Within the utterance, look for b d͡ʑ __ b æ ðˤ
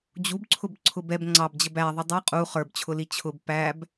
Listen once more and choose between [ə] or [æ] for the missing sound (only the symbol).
ə